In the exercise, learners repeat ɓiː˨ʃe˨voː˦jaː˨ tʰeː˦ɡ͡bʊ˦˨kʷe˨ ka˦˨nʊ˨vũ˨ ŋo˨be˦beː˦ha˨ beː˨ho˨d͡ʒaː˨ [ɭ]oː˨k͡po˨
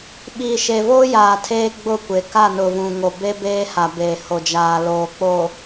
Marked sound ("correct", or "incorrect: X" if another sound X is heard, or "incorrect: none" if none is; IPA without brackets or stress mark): incorrect: l